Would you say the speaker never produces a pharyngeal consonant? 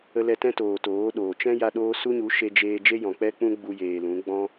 yes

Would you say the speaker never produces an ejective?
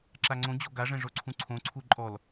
no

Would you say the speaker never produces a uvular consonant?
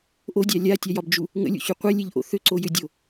no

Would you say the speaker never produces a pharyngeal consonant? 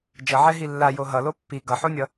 no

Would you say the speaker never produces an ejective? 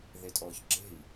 no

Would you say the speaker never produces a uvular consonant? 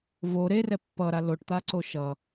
yes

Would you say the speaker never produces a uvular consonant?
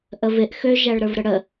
yes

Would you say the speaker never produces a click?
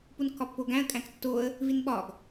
yes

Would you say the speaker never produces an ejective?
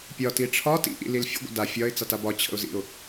yes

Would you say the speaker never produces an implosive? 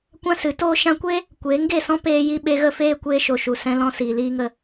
no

